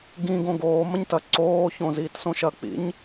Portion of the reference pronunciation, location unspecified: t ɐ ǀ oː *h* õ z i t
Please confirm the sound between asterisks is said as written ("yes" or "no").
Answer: no